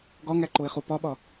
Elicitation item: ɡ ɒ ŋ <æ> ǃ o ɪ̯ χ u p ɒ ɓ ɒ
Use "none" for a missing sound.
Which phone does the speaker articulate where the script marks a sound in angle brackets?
æ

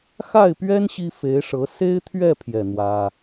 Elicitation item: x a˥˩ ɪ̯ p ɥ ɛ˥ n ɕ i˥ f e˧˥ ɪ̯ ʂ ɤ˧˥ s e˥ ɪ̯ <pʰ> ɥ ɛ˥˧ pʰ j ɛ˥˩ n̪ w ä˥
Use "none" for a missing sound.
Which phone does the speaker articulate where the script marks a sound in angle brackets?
t̪ʰ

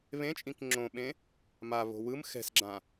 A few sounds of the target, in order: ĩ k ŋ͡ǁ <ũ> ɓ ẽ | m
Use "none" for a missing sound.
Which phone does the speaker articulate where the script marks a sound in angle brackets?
õ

